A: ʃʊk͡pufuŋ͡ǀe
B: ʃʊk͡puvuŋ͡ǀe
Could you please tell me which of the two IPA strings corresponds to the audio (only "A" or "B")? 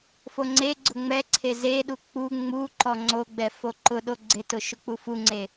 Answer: A